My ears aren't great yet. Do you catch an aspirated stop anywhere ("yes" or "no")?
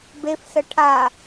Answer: yes